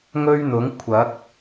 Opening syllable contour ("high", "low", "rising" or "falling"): high